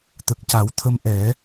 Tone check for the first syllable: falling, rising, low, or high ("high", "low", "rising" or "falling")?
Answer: low